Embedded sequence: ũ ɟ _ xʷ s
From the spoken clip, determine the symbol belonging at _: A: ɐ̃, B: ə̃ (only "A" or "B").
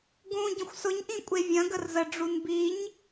B